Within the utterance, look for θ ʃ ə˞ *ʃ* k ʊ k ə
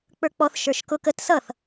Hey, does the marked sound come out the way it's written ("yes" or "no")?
yes